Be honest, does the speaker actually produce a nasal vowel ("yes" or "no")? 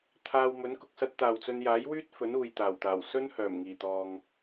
no